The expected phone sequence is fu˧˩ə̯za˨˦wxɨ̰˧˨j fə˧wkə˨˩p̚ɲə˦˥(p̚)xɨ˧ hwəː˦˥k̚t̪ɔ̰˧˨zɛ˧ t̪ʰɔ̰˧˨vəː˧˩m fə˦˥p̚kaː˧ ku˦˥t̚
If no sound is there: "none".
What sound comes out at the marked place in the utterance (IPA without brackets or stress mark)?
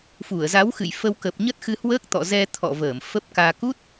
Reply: t̚